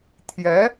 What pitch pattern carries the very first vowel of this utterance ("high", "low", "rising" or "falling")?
rising